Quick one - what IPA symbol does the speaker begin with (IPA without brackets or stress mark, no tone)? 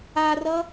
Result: a